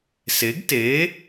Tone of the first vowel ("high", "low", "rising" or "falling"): rising